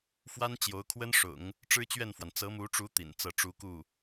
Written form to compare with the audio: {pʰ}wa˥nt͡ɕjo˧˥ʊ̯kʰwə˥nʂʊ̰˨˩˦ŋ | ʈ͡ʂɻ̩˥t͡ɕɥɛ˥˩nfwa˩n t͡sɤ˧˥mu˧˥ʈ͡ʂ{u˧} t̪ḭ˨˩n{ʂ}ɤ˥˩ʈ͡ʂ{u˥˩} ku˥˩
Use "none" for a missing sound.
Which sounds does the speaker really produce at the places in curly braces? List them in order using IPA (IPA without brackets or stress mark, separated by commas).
f, u˧˥, t͡s, u˥